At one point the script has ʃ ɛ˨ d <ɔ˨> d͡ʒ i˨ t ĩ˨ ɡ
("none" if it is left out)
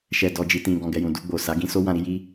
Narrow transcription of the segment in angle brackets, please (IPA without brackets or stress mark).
ɔ˨